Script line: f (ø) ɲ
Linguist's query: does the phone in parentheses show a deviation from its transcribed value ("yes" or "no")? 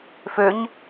no